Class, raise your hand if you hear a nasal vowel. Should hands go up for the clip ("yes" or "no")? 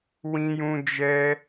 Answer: yes